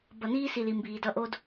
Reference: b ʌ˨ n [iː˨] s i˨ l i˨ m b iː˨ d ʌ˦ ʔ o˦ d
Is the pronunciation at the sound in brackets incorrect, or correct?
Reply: incorrect: iː˦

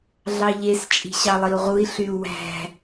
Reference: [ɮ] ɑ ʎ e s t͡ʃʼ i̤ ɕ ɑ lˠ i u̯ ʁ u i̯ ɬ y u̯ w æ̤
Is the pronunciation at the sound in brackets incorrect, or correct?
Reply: correct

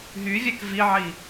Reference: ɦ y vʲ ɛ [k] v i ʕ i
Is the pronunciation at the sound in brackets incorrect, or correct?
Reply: correct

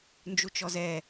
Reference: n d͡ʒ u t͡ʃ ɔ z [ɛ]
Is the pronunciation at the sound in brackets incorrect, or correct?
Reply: correct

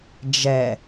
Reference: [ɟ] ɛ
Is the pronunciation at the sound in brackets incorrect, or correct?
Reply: incorrect: d͡ʒ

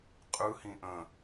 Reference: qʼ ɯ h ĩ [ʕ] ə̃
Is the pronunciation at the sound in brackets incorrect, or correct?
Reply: incorrect: ʔ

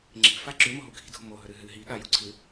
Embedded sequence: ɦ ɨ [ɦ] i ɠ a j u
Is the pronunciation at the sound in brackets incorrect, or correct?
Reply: correct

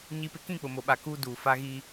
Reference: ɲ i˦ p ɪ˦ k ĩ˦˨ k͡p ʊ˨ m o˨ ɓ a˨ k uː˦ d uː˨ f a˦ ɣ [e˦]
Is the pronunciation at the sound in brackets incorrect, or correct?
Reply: incorrect: i˦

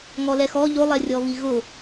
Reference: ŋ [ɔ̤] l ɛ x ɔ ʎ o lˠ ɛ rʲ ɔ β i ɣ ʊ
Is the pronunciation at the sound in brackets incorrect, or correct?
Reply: incorrect: ɔ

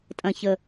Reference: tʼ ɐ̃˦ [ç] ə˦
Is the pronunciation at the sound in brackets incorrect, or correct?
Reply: correct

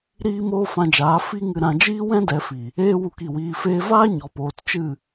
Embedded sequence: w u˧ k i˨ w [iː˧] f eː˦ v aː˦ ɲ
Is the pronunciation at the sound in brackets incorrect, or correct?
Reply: correct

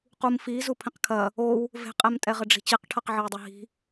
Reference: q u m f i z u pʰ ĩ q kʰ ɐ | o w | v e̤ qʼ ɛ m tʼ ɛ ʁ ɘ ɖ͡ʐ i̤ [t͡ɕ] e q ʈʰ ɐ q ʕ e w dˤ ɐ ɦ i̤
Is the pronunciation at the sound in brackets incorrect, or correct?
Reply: correct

